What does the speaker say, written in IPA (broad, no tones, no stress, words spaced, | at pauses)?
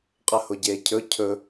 qʼəhʊɟeːcʰɵ cʰɵ